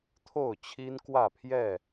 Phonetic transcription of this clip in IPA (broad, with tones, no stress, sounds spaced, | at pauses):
t̪ʰ o˥˨ ʊ̯ t͡ɕʰ i˦ n k w ä˥˨ pʰ j ɛ˥˨